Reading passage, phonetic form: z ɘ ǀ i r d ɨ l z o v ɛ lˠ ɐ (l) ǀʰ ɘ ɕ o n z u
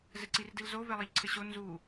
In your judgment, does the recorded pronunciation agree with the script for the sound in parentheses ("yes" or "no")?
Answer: no